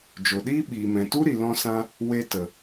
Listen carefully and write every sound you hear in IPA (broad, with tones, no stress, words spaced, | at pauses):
d͡ʒo˨ɗiː˦ɓiː˨mɛ̃˨ tu˦ɾi˨lɔ̃˧sã˧ | we˧tə˨